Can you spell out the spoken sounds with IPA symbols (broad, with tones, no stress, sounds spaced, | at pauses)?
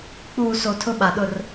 k͡p uː˨ s o˨ tʰ ʊ˦ ɓ a˨ ɗ ʊ˦˨ r